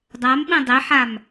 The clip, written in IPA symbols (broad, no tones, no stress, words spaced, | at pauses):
dˤamɓĩ dˤeħam